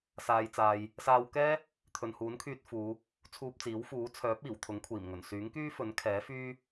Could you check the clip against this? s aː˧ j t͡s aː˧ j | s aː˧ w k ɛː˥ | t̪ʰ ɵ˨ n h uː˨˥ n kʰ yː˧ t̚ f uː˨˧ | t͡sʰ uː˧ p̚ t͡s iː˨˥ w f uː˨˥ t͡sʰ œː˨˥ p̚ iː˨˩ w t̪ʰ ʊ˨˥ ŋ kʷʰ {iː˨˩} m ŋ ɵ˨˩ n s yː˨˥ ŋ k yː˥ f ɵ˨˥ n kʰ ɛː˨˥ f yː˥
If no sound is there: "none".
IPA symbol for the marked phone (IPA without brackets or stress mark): iː˨˩